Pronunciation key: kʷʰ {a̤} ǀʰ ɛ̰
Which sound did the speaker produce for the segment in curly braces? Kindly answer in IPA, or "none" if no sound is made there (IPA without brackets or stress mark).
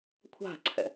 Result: a̤